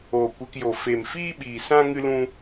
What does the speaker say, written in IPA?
oː˨kʷe˧kjo˨ fe˨mfiː˦ɓiː˨sã˦ ŋɨ˦lũ˦

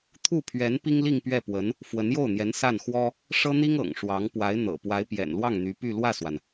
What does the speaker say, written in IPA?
t̪ʰu˥˩pʰɥɛ˧˥n pi˥ŋli˥˧ŋ pɥɛ˥˩pwə˧˥n | fwə˧˥njo˥˩ʊ̯n̪jɛ˧˥n sa˥˩n xwɔ˥ | ʂɤ˥n̪i˥ŋɤ̰˨˩ŋ ʂwɑ˧˥ŋ pwa˧˥ɪ̯n̪ɤ̰˨˩ pwa˧˥ɪ̯pjɛ̰˨˩n lwɑ˥˩ŋn̪y˧˥py˥˧ lwä˥˩swa˩n

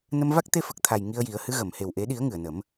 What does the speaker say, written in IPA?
nə˧mva˦˥k̚t̪e˧ fə˨˩k̚t̪ʰa˨˩j ŋi˧ə̯ ji˨˩˦ə̯hɨ˧˥ɣə˨˩˨m he˨˩wʔe˨˩˦ɗi˨˩˦ə̯ ŋɨ˨˩˨ə̯nə˨˩˦m

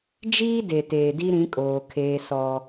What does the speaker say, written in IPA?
d͡ʒiː˦ de˨teː˨ di˦ɾĩ˨˦kʼoː˨ kʰeː˦sɔ˦

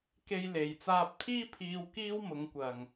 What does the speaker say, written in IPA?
ke˧jle˨jt͡saː˧p̚t̪ʰiː˥ pʰiː˥w kiː˥wmʊ˨˧ŋ kʷɐ˨ŋ

